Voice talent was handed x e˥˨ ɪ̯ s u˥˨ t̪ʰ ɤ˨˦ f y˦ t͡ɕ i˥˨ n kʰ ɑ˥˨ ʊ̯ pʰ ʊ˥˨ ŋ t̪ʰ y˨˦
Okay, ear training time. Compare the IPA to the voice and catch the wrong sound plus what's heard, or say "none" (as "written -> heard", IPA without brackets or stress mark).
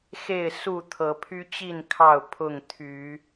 f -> pʰ